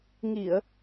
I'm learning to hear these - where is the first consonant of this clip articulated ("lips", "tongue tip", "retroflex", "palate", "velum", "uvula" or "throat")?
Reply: velum